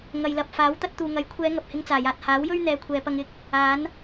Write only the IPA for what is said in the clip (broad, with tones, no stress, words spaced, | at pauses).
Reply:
ŋɐ˨jlɐ˨p̚faː˨˥w t̪ɐ˧t̚t̪uː˨ŋɐ˨˥jkʷʰɛː˨˧ ŋɐ˨p̚hɪ˧ŋt͡saː˨˩jaː˨t̚ haː˨˥wjɵ˥ɥ n̪ɛː˧kʷʰɛː˨˧pɐ˧ŋ ɪ˨˥k̚ | aː˨˥n